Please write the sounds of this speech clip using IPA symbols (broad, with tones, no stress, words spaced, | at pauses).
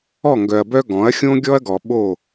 ɔ˦˨ŋɡœ˨ɐ̯bœ˦ ɡɔ̃˨˦ɐ̯ xʲõ˦ɡʲɔ˦ɐ̯ɡɔ˨ ɓo˦˨